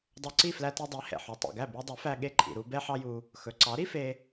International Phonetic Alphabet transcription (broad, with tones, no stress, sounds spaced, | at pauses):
dˤ œ˧ ǀ i˥˩ f l æ˧ t i˧ dˤ i˩˥ h ɛ̰˩ ħ u˩ tˤ ḭ˩ ɡ æ˥˩ b i˧ dˤ y˩˥ f æ˧ ɠ e˧ ǃʼ ḭ˩ ɾ u˧ b ɛ˥ ħ ɑ˥ j u˧ | x ɵ˩ ǀ ɑ˩˥ ɾ i˥ f e˧